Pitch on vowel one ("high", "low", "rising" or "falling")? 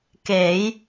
rising